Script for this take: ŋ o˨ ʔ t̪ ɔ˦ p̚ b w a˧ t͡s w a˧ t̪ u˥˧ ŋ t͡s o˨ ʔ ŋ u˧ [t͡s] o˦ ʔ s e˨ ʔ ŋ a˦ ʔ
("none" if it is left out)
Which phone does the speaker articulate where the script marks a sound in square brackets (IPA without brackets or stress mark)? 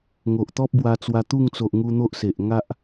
n̪